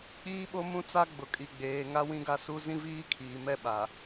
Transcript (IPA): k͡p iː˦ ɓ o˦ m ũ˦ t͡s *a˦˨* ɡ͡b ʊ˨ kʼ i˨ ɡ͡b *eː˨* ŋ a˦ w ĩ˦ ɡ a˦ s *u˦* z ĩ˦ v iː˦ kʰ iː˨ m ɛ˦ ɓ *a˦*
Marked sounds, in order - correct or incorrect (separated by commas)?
incorrect, correct, correct, incorrect